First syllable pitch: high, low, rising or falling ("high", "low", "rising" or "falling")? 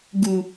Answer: low